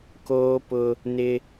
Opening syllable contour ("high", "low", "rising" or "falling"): high